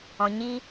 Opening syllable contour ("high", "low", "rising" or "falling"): low